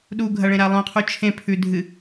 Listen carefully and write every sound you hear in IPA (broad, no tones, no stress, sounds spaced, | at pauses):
ɗ u ɡʱ ɐ ɭ ẽ ɾ a lˠ õ qʰ u t͡ʃʰ ẽ pʰ ʉ dʱ ɨ